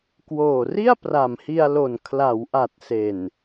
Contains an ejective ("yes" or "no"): no